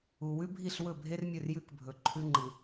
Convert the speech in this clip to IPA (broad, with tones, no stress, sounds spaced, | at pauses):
u˨ w ʉ˦ bʱ i˦˨ ɬ w ɵ˦˨ bʱ e˦ r mʲ ɵ˦˨ r j ʉ˦ k bʱ ɵ˨ ǃʰ ʉ˦ ŋ͡ǃ ɨ˨